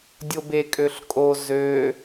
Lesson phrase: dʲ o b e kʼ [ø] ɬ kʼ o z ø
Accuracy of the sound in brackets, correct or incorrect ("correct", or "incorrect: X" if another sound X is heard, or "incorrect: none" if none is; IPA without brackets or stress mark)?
correct